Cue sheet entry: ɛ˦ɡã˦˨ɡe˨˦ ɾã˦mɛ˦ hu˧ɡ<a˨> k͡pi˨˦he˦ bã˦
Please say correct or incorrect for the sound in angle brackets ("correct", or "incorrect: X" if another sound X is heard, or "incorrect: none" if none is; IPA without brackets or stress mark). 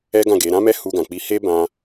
incorrect: ã˨